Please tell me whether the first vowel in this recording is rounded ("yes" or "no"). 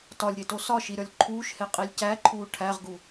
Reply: yes